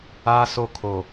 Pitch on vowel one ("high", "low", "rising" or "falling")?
high